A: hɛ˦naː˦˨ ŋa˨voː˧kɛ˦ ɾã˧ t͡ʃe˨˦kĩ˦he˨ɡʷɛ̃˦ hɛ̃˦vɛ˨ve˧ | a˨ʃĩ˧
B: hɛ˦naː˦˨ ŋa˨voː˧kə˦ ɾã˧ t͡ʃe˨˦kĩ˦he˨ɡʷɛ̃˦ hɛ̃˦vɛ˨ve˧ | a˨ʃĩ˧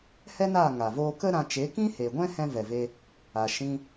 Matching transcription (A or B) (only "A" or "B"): B